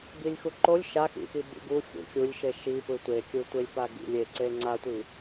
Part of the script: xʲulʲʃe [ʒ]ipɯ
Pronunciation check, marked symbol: incorrect: ʃ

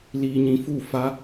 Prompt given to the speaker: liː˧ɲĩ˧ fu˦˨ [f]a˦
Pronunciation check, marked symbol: correct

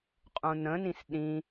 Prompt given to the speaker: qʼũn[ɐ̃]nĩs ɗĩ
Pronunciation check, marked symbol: incorrect: ə̃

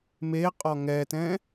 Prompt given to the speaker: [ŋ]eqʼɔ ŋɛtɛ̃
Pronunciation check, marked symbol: incorrect: m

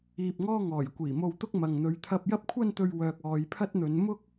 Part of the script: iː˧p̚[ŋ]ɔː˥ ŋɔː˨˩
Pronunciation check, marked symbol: correct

